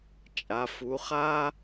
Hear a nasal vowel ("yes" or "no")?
no